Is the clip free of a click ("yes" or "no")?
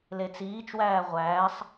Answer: yes